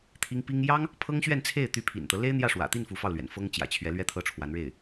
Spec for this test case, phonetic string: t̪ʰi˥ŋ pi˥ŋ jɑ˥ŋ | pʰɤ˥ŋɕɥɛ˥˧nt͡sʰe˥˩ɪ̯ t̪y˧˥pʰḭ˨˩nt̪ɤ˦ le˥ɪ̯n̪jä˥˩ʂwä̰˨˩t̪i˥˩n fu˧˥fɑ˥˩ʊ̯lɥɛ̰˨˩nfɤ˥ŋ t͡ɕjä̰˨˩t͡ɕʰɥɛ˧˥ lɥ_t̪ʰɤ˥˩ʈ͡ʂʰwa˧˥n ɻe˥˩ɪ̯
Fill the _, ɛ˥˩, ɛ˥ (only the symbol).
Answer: ɛ˥